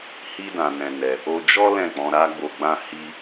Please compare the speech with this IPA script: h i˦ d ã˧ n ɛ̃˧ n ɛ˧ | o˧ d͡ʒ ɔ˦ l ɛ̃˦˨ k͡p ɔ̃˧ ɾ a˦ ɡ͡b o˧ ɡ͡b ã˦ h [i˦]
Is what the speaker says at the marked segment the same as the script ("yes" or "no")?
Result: yes